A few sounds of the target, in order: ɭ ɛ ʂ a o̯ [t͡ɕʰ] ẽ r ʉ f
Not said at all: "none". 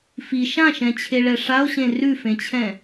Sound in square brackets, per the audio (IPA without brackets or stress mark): ɕ